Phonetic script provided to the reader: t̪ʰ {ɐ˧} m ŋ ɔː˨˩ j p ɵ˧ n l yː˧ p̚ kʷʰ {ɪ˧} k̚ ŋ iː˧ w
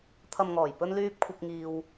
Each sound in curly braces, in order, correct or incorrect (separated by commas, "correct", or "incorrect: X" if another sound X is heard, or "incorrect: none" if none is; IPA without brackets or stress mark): incorrect: ɐ˨, correct